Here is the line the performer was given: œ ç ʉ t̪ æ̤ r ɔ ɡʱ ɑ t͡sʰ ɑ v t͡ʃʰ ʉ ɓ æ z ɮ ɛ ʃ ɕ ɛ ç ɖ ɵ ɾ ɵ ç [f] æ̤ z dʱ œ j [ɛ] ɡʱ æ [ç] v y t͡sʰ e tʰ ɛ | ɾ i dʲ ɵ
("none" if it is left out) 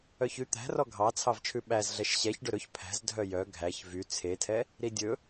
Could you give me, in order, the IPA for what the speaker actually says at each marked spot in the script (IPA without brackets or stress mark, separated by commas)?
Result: pʰ, œ, ç